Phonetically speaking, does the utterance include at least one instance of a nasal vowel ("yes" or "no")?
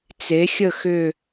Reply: no